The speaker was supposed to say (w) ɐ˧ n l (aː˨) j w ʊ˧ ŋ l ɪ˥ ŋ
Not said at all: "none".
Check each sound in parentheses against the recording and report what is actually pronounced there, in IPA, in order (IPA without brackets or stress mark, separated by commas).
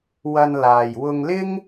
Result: w, aː˨